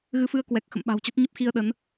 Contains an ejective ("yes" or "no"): no